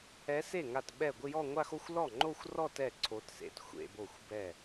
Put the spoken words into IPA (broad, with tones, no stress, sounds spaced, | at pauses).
ɛ˧˥ s e˥˩ ŋ a˥˩ t ɓ ɛ˥˩ ɡʷ ɪ˥˧ j ɔ˥˧ ŋʷ a˥˧ x o˥˧ xʷ l ɔ˥˩ ŋ͡ǃ o˥˧ xʷ r ɔ˥˧ t ɛ˥˩ ǀʰ o˧˥ t s ḛ˥˩ t xʷ ḛ˥˧ b o˥˩ xʷ b ɛ˥˩